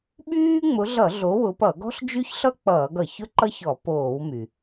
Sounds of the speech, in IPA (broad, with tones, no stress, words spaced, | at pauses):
ɓyː˥ ŋ͡mʊ˨˦ɮʌ˧˩˧ ɮo˨˦wʊ˨˦pʌ˧˩˧ ɡɔ̤˥ɬd͡ʒy˥çɬʌ˥k͡pʌː˧˩˧ɡ ʌ˩çʊ˥ǃʌ˥ç ɔ˧˩˧poː˧˩˧wmy˩